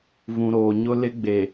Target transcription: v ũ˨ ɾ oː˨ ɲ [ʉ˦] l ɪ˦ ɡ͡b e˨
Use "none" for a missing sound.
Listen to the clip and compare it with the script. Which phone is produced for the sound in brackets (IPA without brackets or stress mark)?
ʊ˦